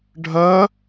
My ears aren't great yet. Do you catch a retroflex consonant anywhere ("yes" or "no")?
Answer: yes